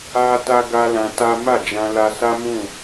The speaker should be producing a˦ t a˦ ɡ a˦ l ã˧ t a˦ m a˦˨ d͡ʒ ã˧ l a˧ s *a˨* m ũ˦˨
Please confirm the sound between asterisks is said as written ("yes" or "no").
no